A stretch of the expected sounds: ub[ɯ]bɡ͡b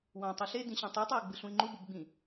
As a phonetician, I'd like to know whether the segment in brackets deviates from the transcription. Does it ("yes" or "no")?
no